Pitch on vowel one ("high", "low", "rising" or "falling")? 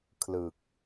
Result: low